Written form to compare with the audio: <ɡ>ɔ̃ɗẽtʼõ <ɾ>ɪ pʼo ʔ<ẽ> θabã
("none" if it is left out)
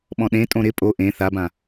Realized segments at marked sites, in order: ɓ, ɾ, ẽ

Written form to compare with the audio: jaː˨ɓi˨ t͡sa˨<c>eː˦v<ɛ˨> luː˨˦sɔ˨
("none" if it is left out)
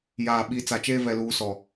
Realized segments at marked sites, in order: t͡ʃ, ɛ˨

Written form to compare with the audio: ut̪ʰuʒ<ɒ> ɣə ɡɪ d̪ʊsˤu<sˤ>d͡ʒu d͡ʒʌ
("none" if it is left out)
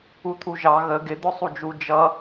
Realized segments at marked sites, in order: ɑ, none

